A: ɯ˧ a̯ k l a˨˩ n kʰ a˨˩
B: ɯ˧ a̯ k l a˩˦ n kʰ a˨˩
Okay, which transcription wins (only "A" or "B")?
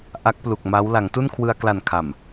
A